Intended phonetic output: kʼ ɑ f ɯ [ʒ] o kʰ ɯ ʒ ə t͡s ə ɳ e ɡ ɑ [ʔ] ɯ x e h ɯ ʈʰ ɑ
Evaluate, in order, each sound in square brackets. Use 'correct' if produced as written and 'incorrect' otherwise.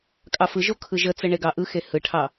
correct, correct

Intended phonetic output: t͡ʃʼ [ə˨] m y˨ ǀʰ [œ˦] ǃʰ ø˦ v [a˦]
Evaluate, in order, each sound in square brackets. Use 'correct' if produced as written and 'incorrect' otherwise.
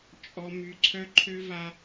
incorrect: ɔ˨, correct, correct

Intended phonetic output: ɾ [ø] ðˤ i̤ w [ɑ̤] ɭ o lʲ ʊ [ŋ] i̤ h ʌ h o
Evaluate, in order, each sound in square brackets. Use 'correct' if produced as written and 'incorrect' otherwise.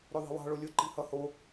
correct, correct, incorrect: ǃ

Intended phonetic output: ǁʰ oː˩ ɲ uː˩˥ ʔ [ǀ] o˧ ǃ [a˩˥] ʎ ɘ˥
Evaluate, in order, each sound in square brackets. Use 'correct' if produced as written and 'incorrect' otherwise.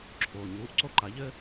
correct, correct

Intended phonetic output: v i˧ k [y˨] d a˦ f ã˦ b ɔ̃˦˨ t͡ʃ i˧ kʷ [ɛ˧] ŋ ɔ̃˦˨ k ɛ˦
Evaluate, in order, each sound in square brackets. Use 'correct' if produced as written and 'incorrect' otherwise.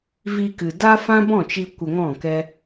incorrect: ɨ˨, incorrect: ə˧

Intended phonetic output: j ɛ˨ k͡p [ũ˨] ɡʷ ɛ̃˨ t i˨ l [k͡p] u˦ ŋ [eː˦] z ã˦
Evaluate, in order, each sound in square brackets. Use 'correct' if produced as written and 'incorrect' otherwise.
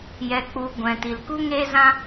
incorrect: u˨, incorrect: k, correct

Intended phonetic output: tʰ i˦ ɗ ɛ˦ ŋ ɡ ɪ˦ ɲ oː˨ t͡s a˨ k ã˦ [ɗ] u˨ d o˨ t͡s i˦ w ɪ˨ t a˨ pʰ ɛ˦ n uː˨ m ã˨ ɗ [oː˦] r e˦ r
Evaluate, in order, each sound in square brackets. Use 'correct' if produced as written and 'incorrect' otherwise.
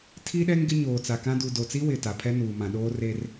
incorrect: d, correct

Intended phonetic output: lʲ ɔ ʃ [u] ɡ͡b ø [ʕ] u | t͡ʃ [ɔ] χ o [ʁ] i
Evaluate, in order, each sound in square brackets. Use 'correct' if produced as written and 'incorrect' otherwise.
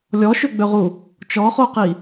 incorrect: ø, incorrect: ʁ, correct, incorrect: q

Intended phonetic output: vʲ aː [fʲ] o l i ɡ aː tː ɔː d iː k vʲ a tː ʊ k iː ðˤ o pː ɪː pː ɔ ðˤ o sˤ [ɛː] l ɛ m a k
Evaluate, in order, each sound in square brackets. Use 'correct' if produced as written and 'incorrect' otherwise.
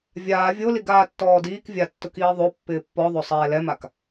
incorrect: vʲ, correct

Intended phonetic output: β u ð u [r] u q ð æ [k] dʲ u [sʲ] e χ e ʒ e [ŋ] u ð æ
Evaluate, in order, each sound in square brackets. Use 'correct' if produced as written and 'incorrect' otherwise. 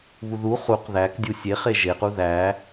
incorrect: χ, correct, correct, incorrect: q

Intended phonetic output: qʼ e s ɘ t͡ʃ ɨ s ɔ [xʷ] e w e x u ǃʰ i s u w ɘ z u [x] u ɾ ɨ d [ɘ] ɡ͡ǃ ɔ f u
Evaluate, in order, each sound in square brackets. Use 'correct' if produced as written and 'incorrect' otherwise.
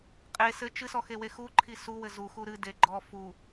incorrect: x, correct, incorrect: e

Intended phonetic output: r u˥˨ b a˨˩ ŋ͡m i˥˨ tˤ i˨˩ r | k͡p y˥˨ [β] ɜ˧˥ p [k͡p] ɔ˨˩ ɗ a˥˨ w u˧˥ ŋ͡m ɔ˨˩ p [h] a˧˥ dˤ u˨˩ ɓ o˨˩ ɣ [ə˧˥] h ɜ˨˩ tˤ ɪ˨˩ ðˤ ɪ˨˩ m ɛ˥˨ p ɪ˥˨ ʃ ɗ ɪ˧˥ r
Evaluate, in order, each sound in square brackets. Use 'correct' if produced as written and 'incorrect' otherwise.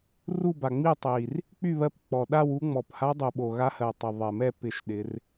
correct, correct, correct, incorrect: a˧˥

